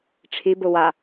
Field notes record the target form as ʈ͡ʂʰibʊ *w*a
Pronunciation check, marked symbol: correct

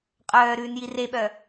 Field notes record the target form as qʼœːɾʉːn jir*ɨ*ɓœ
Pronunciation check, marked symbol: incorrect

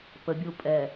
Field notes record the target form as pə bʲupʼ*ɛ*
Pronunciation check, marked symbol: correct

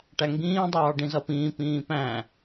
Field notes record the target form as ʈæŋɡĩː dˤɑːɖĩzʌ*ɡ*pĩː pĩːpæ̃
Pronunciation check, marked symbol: incorrect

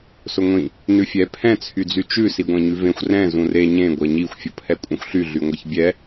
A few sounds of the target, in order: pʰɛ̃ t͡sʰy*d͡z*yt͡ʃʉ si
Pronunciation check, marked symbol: correct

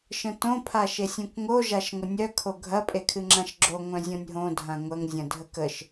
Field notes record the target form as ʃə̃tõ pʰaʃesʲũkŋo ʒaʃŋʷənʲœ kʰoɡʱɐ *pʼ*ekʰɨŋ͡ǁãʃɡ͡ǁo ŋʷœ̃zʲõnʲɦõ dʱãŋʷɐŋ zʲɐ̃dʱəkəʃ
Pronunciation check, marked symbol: correct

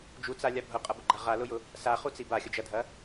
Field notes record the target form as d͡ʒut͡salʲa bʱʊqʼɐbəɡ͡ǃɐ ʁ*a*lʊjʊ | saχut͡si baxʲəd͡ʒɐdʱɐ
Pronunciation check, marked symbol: correct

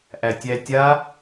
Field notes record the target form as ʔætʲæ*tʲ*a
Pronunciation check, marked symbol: correct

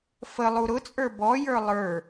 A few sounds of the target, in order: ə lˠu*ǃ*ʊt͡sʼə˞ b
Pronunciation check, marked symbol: incorrect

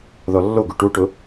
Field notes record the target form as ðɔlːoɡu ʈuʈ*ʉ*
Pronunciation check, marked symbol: incorrect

